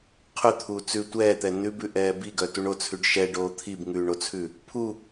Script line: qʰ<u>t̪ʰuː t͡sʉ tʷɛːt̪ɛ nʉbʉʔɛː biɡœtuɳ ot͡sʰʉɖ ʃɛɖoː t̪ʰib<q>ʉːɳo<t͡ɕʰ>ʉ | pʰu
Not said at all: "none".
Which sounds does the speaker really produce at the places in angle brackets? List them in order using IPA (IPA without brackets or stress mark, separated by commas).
ʉ, ŋ, t͡sʰ